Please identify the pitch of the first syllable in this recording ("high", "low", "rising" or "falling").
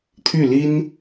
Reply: falling